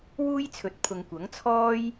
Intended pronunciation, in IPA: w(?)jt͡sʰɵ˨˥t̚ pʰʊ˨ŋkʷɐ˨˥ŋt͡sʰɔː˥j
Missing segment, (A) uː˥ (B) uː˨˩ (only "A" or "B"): A